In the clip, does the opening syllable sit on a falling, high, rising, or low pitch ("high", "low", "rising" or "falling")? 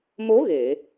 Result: rising